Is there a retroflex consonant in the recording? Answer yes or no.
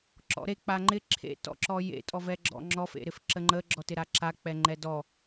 no